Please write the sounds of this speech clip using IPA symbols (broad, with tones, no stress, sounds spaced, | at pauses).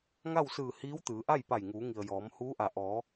ŋ a˥˨ w s ɯː˧˩ h iː˧˥ w t̪ ɯː˩˧ ʔ a˥˨ j p a˧˩ j ŋ uː˩˧ ŋ i˩ ə̯ j ɔː˩˧ m h uː˧˥ ʔ a˩ ʔ ɔː˩˧